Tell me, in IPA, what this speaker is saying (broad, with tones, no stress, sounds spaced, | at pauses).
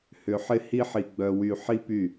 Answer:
h ʏ˧ ħ ɪ˦ h i˦ ħ i˧ ɡ͡b œ˧ w y˧ ħ i˦ p y˦˨